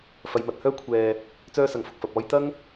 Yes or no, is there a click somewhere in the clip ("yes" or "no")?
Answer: no